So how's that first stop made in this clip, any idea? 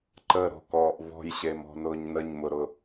click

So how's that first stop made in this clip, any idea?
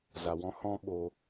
implosive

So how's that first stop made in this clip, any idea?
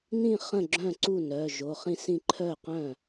click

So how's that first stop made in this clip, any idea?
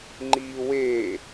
click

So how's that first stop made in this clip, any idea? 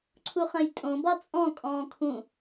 click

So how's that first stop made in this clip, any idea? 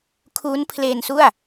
aspirated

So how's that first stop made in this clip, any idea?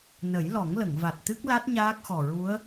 plain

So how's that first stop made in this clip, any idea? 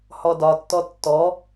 plain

